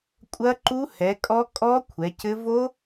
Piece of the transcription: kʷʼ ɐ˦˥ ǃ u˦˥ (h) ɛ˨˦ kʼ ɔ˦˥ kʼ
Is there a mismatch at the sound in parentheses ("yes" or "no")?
no